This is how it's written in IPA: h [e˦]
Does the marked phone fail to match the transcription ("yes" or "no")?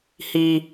yes